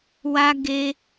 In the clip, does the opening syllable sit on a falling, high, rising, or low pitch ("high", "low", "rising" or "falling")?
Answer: high